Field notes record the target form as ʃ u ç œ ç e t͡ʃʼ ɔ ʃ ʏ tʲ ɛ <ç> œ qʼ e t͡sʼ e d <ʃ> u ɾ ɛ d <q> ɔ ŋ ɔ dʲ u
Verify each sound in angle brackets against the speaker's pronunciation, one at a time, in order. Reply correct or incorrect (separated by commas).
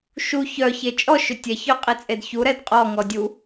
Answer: correct, incorrect, incorrect